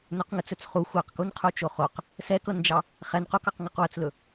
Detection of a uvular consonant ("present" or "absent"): present